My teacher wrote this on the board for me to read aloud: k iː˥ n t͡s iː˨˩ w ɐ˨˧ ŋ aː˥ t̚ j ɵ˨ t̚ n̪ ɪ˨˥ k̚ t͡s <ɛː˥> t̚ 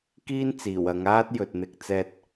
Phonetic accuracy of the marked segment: incorrect: ɛː˧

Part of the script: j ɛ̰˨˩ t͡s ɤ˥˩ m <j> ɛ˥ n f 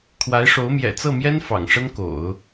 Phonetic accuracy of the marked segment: correct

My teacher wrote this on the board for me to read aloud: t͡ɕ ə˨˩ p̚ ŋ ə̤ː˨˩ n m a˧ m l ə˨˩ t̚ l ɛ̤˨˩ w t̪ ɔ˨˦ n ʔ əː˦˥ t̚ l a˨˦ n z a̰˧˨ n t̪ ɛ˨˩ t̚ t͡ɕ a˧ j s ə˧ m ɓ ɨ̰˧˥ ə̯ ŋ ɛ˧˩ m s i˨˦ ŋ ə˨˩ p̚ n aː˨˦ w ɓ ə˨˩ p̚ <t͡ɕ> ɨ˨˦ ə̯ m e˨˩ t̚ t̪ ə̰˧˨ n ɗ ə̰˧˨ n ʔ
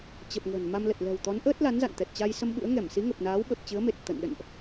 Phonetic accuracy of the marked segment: correct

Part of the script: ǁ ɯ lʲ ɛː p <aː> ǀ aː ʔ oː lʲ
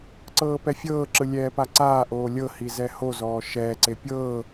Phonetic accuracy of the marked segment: incorrect: a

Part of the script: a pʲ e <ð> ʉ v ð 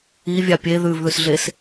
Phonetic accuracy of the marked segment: correct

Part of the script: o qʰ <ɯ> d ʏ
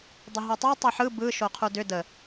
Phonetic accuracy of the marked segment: incorrect: u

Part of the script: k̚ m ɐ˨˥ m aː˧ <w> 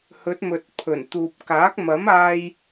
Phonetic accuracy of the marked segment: incorrect: j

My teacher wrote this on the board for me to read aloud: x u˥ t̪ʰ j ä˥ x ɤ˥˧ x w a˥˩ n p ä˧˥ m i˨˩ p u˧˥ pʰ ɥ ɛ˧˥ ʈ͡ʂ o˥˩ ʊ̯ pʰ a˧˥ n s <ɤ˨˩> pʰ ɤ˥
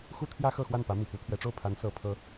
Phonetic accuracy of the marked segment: correct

